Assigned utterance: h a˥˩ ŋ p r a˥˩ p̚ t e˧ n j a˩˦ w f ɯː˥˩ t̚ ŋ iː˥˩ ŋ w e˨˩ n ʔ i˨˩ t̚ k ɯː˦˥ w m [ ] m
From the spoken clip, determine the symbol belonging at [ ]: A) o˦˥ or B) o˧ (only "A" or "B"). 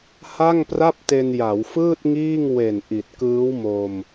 B